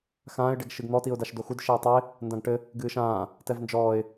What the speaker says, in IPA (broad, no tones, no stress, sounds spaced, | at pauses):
x ãː ɪ̯ ɖ ɛ ɡ ʃ ɨ ɡ n̪ ɔ t i ʊ̯ d a ʃ d o x u d ʃ e ə̯ tˤ o ɪ̯ | n d ã ɡ ʈ ɘ | ɡ ɨː ʃ ãː | t ɛ v n d͡ʒ ɔː ɪ̯